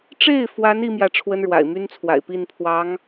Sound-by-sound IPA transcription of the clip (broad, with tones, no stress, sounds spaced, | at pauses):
ʈ͡ʂ e˥˩ ɪ̯ f w a˧˥ n i˥ m j ä˥˩ ʈ͡ʂʰ w ə˥ n ɻ w a̰˨˩ ɪ̯ m y˥ n t͡sʰ w a̰˨˩ ɪ̯ p i˥˩ n pʰ w ɑ˧˥ ŋ